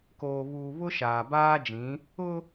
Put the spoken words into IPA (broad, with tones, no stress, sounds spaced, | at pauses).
k oː˨ β uː˨ β ʊ˦ ʃ aː˨ b aː˦ d͡ʒ ĩ˨˦ | ʊ˦